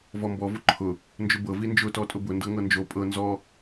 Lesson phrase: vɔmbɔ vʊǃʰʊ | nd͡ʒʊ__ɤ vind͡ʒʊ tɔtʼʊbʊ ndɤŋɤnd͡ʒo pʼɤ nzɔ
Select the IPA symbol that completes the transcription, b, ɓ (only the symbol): b